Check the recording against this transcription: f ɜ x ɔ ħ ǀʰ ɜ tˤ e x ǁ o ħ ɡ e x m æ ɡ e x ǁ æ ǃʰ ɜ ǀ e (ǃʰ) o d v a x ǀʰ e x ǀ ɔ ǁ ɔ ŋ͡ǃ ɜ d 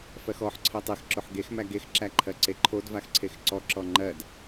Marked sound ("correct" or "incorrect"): correct